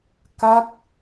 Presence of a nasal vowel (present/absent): absent